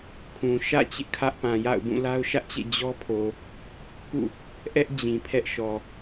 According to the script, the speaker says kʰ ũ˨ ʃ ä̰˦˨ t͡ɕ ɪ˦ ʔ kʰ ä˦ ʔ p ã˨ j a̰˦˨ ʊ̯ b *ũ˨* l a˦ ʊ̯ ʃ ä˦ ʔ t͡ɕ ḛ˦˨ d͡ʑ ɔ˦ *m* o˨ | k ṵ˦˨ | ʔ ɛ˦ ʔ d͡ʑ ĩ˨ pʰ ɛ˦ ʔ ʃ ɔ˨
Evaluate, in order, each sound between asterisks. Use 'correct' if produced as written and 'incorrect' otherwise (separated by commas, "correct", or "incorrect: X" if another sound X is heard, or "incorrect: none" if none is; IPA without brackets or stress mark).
incorrect: ũ˦˨, incorrect: pʰ